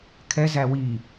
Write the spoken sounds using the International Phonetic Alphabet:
kʰɛ zæwiː

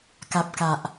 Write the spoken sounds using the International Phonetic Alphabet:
ka˨p̚ka˨ʔ

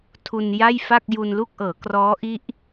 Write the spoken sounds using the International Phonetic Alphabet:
tʰu˧nja˥˩jfa˥˩k̚ ju˧nlu˥˩k̚ʔɤː˩˦krɔː˦˥ ʔi˦˥ʔ

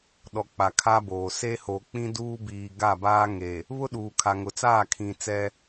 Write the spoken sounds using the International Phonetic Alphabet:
ɗɔ˨ k͡pa˨kʰa˦boː˨ se˦ho˨k͡pĩ˦ duː˦biː˨ ɡa˦˨baː˦ŋe˨ | βʊ˦ɗuː˨kʰa˨ ŋʊ˨t͡saː˦˨ kʰĩ˨ t͡sɛ˦

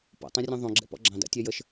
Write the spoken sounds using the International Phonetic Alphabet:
pɔ̰tˤõrʲõ ðˤõ ɡ͡ǁɛ̰pɔ̰ɡ͡ǁɑ̃ da̰tʲɛjəʃ

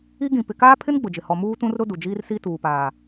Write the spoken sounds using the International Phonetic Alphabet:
i˦ɡĩ˨ pɪ˨kaː˦pʰɪ˦n ɡ͡bʊ˨d͡ʒɪ˨ hɔ˨ muː˦tũ˦rɾʊ˦ du˨d͡ʒiː˦rsi˦ tuː˨paː˨

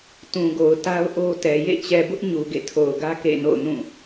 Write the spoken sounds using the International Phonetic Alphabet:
tũ˨ɡo˨ʊ̯ ta˦ʊ̯ʔo˦tɛ˨ jḛ˦˨t͡ɕɛ˨bʊ˦ʔ ɲu˨ɡḛ˦˨tʰo˨ʊ̯ɡä˦ kḛ˦˨no̰˦˨ʊ̯nũ˦˨

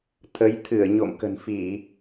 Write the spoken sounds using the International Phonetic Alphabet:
t̪ʰə˨˦jt̪ʰɨ˧˩ə̯ ɲo̰˧˨mkə̤˨˩nfi˧˩˨

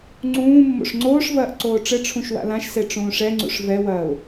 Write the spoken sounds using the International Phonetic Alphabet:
ŋ͡ǀũː mːo̰ʂŋ͡ǀoːʂvɐːʔ ǀoːʈ͡ʂɘʈ͡ʂʰũʃ wa̰lãʃse ʈ͡ʂũːʂɛŋ͡ǀṵʂ vɛwɐːʊ̯

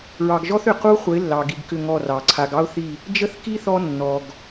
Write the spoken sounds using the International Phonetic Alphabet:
ɹɑ˨ɡʒɔ˦θʏ˨ qu˦χʷə˨˦ɪ̯lːɑ˨ɡi˨ɡ kʏ˦˨ŋɔ˦˨rɑ˨ ǀʰa˨ɡɑ˦ʊ̯θi˦˨ | d͡ʒə˦θki˦ θɔ˦nːɔ˨ɡ

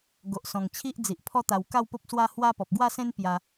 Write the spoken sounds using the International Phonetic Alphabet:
ɡo˨ʔsɔ̃˨˩ŋt͡ɕʰi˦ʔd͡zi˨ʔ pʰɔ˦t̪a˧w ka˥˧wpo˦p̚ swa˦hwa˦ pɔ˨p̚ɡwa˥˧sẽ˦n pja˧

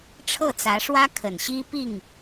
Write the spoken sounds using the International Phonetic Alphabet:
ʈ͡ʂʰɤ˥˩t͡sä˧˥ʂwä˥ kʰə˨˩nɕi˥ pi˥˩ŋ

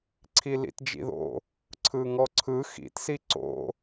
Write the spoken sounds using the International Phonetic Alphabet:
ǀʰilḭtd͡ʒḭðo̰ | ǀʰɯŋɔǀʰɯ xḭt siǀo̰

